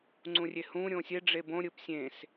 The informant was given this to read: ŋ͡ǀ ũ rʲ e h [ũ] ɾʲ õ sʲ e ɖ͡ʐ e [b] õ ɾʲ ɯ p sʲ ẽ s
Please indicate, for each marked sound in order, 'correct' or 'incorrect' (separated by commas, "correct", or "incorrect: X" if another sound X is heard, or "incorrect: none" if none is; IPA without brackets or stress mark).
correct, correct